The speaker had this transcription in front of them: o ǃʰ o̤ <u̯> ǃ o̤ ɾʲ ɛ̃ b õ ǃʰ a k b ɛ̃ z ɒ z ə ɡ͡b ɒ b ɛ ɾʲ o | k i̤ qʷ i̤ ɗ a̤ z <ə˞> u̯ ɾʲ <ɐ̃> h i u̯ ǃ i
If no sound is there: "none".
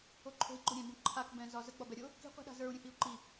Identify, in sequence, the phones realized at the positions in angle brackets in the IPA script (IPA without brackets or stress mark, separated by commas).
i̯, ə˞, ə̃